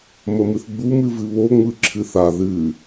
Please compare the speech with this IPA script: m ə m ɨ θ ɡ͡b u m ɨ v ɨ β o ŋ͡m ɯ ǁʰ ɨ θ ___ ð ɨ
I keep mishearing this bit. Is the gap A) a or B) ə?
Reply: A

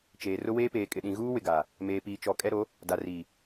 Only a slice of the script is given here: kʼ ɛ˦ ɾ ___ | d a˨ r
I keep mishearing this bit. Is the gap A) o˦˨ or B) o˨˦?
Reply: B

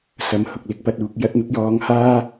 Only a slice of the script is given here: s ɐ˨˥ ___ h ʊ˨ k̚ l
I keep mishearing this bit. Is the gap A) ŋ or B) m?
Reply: B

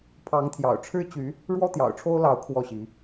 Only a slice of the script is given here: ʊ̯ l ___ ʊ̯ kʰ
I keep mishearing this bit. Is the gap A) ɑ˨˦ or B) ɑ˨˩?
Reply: A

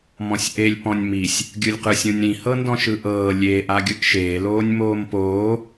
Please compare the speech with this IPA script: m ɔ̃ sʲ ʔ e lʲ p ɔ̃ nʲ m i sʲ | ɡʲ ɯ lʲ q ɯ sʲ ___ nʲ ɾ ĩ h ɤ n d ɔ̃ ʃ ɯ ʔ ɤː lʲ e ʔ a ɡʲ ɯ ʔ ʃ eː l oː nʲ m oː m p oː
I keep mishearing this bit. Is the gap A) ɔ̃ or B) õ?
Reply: B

